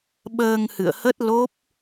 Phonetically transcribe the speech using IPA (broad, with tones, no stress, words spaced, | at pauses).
ɓəː˧ŋhɨ̰˧˨ə̯hə˦˥t̚ lo˦˥p̚